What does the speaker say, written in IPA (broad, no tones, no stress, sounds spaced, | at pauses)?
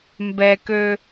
m b ɛ k ø